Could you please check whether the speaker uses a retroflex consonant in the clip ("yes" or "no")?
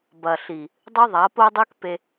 no